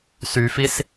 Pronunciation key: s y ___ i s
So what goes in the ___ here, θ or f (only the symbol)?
f